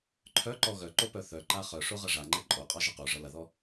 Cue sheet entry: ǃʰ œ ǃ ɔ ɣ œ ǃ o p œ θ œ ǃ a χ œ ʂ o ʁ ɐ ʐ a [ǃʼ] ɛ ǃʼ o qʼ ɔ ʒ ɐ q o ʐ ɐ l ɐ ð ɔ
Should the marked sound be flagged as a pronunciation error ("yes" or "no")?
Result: yes